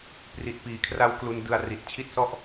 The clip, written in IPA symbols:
p r i˨˩ t̚ p iː˨˩ kʰ r a˧ w k l u˧ n d ɯ˧ a̯ r i˨˩ t̚ t͡ɕʰ i˥˩ t̚ s ɔ˥˩ ʔ

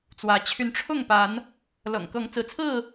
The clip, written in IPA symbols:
t͡s w ä˨˦ t͡ɕʰ y˨˦ n ʈ͡ʂʰ ʊ˥˨ ŋ p a˨˦ n | l ɤ̰˨˩ ŋ k ɤ˨˦ ŋ t͡s ɹ̩˨˦ t͡sʰ ɹ̩˥˨

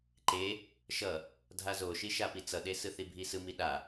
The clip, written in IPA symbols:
ǃ e | ʃ ʌ | dʱ a z o ʃ i ʃ a p i t͡s ʌ ɗ e s ɯ θ i bʱ i s ɯ m i ɗ a

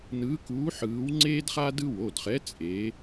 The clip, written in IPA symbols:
n ɯː˨˥ k uː˨˥ ħ ɯː˨˥ w ŋ͡ǀ eː˥ d χ a˥ d ɯ˥ w o˩˧˩ d χ ɛ˨˥ t͡sʼ e˨˥

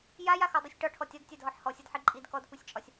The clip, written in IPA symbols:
j a j a x ɔ dˤ u sʲ ʈ ɒ ʈʰ ɔ tʲ ɒ d tʲ a d ɦ ɔ ħ h ɔ sʲ ɒ d ħ i ǃʼ i d k ɔ d kʷ i sʲ t͡ʃʼ ɒ sʲ

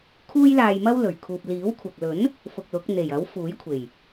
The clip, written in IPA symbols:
kʰ uː˥ j l aː˧ j m ɐ˥ w l ɵ˨˩ ɥ kʰ uː˨ p̚ l iː˨˥ w kʷʰ ɐ˨ k̚ l ɵ˨˥ n | f ʊ˧ k̚ l ʊ˨˥ k̚ n̪ e˨˩ j ɐ˨˥ w f uː˨˥ j kʷʰ e˨˩ j

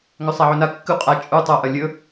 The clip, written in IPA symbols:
ŋ ɵ sˤ a ʕ ɵ n a kː ʉ qʼ a t͡ʃʼ u tˤ o ʔ ɐ lʲ ɵ

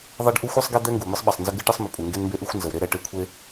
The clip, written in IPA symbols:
ðˤ e˥ ɖ ʔ u˥ xʷ ɨ˥ sˤ ɡ e˥ d̪ ɛ˥ ŋ ɡ u˩ m ɨ˥ sˤ ɓ ɛ˩ sˤ n z ə˥ ɡ ɨ˥ ʈ ɨ˥ sˤ m ə˩ pʼ u˩ ŋ ɡ e˥ n m b e˥ ʔ ɨ˥ xʷ n z ə˩ w ɾ e˥ ɾ ɛ˩ ʈ e˥ kʷʰ e˥

